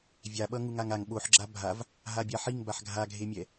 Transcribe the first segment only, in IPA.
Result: vʲ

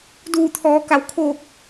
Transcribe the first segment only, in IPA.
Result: d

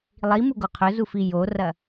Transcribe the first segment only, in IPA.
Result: lˠ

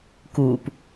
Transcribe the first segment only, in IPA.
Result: k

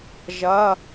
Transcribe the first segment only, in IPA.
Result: ʒ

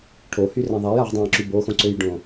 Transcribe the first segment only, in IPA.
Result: ʈʰ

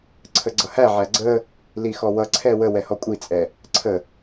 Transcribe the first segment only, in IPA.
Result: ǀʰ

